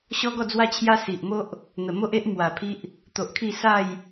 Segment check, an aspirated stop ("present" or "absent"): present